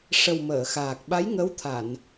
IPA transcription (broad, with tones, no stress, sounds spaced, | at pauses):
ʂ ə˨˩ w m əː˨˩˨ x aː˨˩ k̚ ɓ a˧˥ j ŋ ə˧˥ w t̪ʰ a˨˩˨ n